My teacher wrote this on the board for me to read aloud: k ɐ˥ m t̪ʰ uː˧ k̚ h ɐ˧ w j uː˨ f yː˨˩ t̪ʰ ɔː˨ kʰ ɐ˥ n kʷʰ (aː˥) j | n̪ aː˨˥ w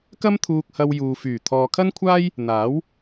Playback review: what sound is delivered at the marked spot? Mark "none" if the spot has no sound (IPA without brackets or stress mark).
aː˥